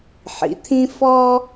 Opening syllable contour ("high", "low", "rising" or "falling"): low